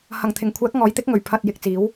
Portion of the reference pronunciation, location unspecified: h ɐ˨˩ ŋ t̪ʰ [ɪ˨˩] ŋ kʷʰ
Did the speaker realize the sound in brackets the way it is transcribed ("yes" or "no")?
yes